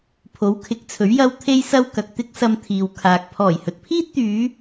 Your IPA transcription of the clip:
pʰ o˨˥ w kʰ ɪ˨˥ k̚ t͡sʰ ɵ˨˥ ɥ j ɐ˥ w t̪ʰ e˥ j s ɐ˥ w k ɐ˨ k̚ t̪ ɪ˥ k̚ s ɐ˧ m t̪ʰ iː˨ w kʰ aː˨ k̚ pʰ ɔː˨˩ j h ɵ˨ t̚ pʰ iː˥ t̚ t̪ yː˨˧

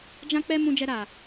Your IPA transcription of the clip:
d͡ʒ ã˦ k͡p ɛ˦ m ũ˦ d͡ʒ ɛ˦ ɾ a˧

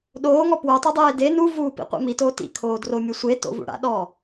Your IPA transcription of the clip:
ɗ oː ŋ ɔ p w o tˤ ʊ dˤ eː d e n u v uː p ḭ qʷ ɛ̰ m i t oː t ḭ kʰ oː d r o mʲ o sʷ e t o̰ v ṵ ɽ a̰ ɗ ɔː

